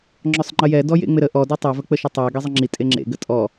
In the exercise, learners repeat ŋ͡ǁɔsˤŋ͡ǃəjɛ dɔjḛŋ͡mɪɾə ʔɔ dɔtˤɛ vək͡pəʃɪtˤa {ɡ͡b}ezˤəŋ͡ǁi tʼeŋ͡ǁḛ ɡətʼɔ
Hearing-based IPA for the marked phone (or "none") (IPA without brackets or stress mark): ɡ